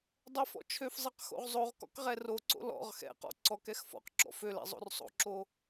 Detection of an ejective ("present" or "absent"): absent